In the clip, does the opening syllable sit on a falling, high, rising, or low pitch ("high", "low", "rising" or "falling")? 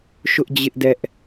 high